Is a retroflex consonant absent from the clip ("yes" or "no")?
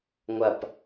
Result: yes